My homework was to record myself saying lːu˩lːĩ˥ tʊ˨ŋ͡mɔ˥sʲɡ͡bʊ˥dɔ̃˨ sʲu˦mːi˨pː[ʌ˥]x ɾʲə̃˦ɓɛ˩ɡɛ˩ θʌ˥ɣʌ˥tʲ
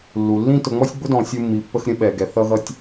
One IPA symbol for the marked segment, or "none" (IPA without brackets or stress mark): ə˥